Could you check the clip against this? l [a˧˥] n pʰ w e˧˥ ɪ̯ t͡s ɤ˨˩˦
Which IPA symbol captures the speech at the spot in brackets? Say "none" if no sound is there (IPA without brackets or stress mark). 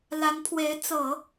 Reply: a˧˥